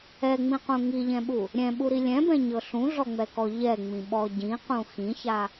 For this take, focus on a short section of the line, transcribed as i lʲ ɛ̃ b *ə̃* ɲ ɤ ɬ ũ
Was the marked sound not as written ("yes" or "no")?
yes